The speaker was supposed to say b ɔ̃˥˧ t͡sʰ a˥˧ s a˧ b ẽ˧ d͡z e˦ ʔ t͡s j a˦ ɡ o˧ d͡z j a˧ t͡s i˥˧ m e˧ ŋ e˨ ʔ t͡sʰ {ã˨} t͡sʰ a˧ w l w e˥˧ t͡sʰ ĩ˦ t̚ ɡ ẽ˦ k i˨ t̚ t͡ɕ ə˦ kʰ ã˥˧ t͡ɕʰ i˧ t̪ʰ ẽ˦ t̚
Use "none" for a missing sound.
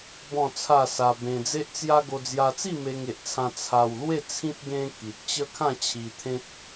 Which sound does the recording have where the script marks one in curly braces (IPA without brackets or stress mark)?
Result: ã˧